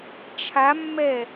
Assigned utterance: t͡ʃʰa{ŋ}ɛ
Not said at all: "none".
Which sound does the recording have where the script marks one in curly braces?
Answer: mː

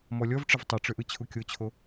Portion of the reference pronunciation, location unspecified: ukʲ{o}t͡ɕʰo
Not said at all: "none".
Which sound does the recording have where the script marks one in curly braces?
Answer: o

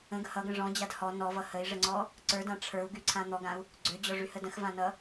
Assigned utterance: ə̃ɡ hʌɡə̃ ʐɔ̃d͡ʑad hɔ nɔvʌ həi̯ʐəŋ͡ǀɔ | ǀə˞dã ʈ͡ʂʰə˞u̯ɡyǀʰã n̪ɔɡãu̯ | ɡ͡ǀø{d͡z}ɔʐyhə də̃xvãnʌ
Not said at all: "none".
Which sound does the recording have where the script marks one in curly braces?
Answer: d͡ʑ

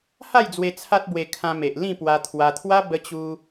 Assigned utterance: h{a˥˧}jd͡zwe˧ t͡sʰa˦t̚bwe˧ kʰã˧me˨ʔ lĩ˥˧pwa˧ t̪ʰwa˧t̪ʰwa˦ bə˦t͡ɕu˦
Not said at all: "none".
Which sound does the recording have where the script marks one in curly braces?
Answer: a˥˧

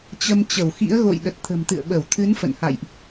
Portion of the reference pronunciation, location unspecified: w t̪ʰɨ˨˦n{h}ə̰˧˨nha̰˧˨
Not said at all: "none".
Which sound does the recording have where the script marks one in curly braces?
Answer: f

